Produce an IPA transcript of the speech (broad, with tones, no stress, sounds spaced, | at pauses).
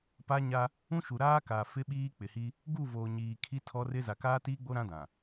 p a˦ ɲ a˦ | ũ˦ ʃ u˨ ɾ aː˦ k aː˨ f ɪ˦ ɓ iː˦ k͡p ɪ˨ h i˦ | ɡ u˦˨ v oː˨ ɲ iː˨ kʰ i˦ tʰ ɔ˦ r ɪ˦ z a˨ k aː˦ t iː˦ ɡ͡b o˦ ɾ ã˦ d ã˨